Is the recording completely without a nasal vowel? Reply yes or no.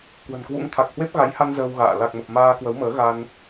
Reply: yes